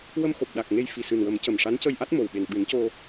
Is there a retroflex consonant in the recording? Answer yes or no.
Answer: yes